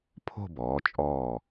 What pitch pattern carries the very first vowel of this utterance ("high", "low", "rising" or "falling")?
falling